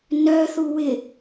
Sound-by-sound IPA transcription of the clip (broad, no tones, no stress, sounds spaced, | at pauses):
n œ θ u w ɪ